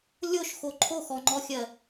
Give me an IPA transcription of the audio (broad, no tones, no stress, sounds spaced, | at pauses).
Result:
lʲ o ʃ x o ǃʰ o x ɔ ŋ͡ǃ ɔ xʲ ɜ